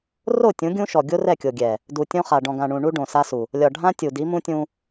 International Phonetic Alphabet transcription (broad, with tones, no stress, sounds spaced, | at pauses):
r o˦˨ tʲ ũ˨˦ ɡʲ ũ˦ ʃ ɔ˨ ɡʲ o˦ r ɛ˦˨ kʲ o˨ ɡʲ ɛ˨ | d u˨ tʲ õ˦ χ a˨ ɖ ɔ̃˨ ɡ ã˨ ɳ ũ˨ ɳ u˦ ɖ õ˨ s a˦ s u˨ | lʲ ɒ˨ ɖʱ ã˦ tʲ u˨ d i˨˦ m ũ˦ tʲ ũ˦